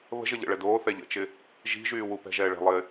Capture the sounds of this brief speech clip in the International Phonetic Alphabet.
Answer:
βə̤ʒə ʎə̰ɭɛ doːθɛ ʎə̰t͡ʃɪ | ʒi̤ʒyː wupɛ̤ʒɛː ɭɛ̤lˠɪː

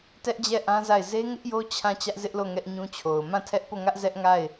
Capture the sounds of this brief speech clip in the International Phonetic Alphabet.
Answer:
tɛ˦ʔd͡ʑɛ˦˨ ʔã˦za˦˨ɪ̯ ze˦ŋɪ˦ʔjo˦ t͡ɕʰã˦˨ t͡ɕä˦ʔzɪ˦ʔlo˦˨ ŋɛ˦ʔɲũ˦t͡ɕʰo˨ʊ̯ mã˦˨tʰɛ˦ʔpo˦˨ŋä˦ʔ zɛ˦ʔŋa˦˨ɪ̯

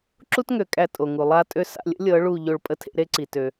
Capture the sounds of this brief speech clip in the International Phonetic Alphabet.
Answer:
ǁu˦tŋø˨ kʼæ˧tʼo˨ ŋu˨ lˠa˦tʼø˦ sa̰˧lʲə̰˦lʲɤ˨˦ ɭu˦˨ ʎo˦˨ɭpʼə˦tʰḛ˦ ɾe˦ǀi˨ tø˧

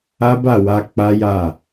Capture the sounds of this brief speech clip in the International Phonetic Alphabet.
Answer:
a˦ba˦˨wa˧ k͡pa˦ja˦˨

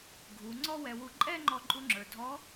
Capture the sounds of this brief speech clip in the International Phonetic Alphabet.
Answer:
ɡʱu˩˧ ŋ͡ǀɔ˥wɛ˧wu˧ ǃʼɛ˥ŋ͡ǃɔ˧ ǃʼu˧ŋ͡ǁə˞˩dʱɔ˧˥

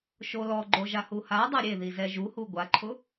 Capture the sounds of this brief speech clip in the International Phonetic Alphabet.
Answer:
ʃolɔɡ͡ǃo ʒahuhadˤa ɾʲeðizɛ ʒuhu ɡʷaǃʰʊ

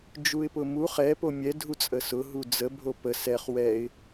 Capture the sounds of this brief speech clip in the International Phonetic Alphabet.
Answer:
d͡ʒuɪ̯pʊmuχ ɛpo mʲɛdʱu t͡sʼəsʊɦu d͡zə bʱopə sɛχ wɛɪ̯

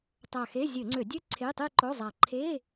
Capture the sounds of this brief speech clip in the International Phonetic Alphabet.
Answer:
tˤa˧˩xe˧˥˧ zʲø˧˩˧ŋ͡ǀø˧˩˧dʲø˥˧ ǀʰe˧˥˧tˤe˥˧ǃo˧˥˧zˤa˧˩ ǃʰe˧˥˧

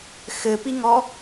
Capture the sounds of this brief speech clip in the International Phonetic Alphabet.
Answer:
xɘpiŋɔ

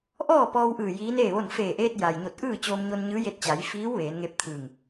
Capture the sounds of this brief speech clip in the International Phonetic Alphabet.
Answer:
ʔɔː˥˨pɔː˧wʔɯː˧˩ jiː˧˥neː˥˨ʋo˥˨n feː˧˩ʔeː˧t̚ ja˩jɲo˧˩t̚ ʔɯː˥˨t͡ɕoː˧mɲo˧nɲɯː˧˥ je˧t̚t͡ɕa˩˧jfiː˧˥w ʋeː˩˧nŋe˧˥p̚t̪ʰɯː˧˩ŋ

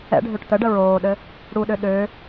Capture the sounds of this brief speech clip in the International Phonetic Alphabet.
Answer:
ɛ̰ɖʱøʈ t̪əɖə ɹoːɗɘ | ɽuɗø ɗø

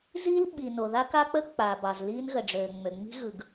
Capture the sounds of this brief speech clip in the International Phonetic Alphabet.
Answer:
ziː˥l ɓi˩ no˩ða˥ka˥k͡pə˥ k͡paː˩bɑ˩z liː˥nɣə˩ɖ͡ʐøː˩ ŋ͡mø˩ŋ͡mi̤˥ ɣɯ˩ɡ

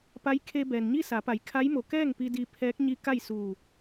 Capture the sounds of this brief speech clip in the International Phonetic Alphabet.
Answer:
pa˧˥j kʰe˧ bɛː˩nɲi˥˨sa˩˧pa˩˧j kʰa˧˥jmo˩˧ kɛː˥˨ŋpi˧ di˧pʰɛː˧˥k̚ɲi˧˥ ka˥˨jsuː˧˩

